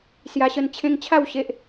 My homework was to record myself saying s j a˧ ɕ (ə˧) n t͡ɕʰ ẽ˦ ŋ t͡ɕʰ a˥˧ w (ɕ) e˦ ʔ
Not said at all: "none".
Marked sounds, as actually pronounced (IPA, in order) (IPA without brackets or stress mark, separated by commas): ə˧, ɕ